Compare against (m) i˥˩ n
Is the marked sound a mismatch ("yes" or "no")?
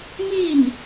no